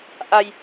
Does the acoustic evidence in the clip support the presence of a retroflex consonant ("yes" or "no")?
no